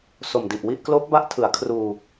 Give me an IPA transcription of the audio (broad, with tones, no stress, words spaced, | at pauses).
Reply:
so˨˩mdi˨˩ʔwi˥˩ʔ kloː˦˥k̚ba˦˥ʔtʰɯ˩˦a̯ kʰruː˧